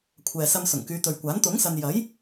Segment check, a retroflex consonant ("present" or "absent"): absent